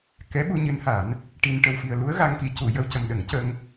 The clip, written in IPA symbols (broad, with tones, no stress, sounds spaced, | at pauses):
k ɛ˧˥ ɓ u˧ ɲ ɨ˧˥ n h a˨˩˦ n | ʈ i˧ n ʈ ə˨˩ w f i˨˩ ə̯ l u˧˥ ə̯ ɣ a˧ ŋ k i˨˩˦ c u˨˩˨ j ə˧ w c ə˨˩ m ɗ ə˨˩˦ ŋ c ə˧ ŋ